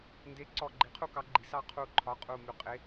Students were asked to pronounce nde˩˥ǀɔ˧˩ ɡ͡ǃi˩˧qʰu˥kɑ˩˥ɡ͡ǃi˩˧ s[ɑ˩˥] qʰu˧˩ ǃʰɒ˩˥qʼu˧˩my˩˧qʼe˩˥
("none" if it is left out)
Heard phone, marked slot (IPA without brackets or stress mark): ɑ˥